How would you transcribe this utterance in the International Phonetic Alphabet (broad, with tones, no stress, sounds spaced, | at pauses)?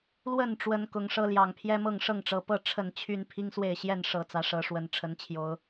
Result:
l w ə˥˨ n ʈ͡ʂ w ə˦ n k ʊ˨˩ ŋ ʂ ɤ˦ l j ɑ˨˩ ŋ pʰ j ɛ˦ m ɤ˥˨ ŋ ʂ ɤ˥˨ ŋ ʈ͡ʂ ɤ˨˩ p ɤ˥˨ ʈ͡ʂʰ ə˥˨ n t͡ɕʰ y˦ n pʰ i˦ ŋ s w e˥˨ ɪ̯ ɕ j ɛ˥˨ n ʂ ɤ˨˦ t͡s ä˨˦ ʂ ɤ˨˦ ʂ w ə˨˩ n ʈ͡ʂʰ ə˨˦ n t͡ɕʰ j o˨˦ ʊ̯